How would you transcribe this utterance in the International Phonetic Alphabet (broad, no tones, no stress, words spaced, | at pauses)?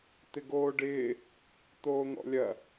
t̪ɪɡoːɖɪː | t̪oːn̪ɔ̰lʲɐ